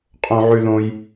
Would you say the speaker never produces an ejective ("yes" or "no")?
no